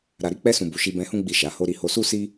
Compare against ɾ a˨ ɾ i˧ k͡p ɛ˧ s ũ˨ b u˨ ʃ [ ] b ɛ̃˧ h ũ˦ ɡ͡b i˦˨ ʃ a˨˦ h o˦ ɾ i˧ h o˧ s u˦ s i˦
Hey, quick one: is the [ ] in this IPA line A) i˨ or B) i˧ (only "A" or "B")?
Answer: B